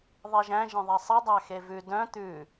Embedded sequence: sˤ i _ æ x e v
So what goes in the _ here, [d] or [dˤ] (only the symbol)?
dˤ